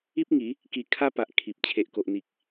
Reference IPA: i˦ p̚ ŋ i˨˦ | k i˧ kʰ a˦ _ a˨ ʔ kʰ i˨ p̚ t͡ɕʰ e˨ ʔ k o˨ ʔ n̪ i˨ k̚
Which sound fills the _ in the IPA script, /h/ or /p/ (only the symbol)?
p